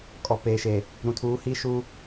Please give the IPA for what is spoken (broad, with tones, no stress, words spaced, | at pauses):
kʼɔ˨peː˨ʃe˨ | ɾũ˨tʰuː˨˦hiː˦ʃuː˦